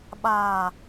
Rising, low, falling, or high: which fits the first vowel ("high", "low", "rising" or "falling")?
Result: low